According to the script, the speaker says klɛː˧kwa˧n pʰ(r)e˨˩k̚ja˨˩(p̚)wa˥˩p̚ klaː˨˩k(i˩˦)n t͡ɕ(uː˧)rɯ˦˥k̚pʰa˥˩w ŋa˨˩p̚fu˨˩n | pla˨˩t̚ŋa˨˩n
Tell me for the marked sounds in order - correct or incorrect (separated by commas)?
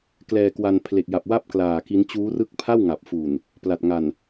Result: incorrect, correct, incorrect, incorrect